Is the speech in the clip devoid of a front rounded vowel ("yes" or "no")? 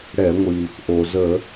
yes